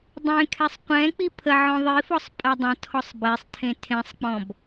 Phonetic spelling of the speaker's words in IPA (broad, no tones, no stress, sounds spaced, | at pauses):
dˤ ẽ kʰ ɛ sˤ qʷ ɛ̃ k͡p i pʰ ə ʕ ɔ̃ ðˤ i f ɔ sˤ pʼ ɐ dˤ ə̃ tʰ ɔ sˤ b e sˤ tʰ ẽ tʰ ẽ sˤ k͡p ɔ̃ b